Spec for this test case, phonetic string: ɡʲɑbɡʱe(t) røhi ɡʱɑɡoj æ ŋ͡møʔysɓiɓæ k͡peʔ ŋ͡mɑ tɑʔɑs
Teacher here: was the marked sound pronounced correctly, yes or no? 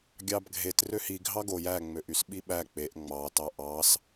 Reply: yes